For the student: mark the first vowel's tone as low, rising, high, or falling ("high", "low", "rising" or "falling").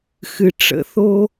low